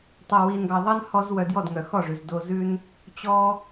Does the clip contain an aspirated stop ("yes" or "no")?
no